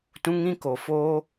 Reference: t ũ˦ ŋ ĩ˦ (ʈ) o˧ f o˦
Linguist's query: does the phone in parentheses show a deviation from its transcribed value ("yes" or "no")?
yes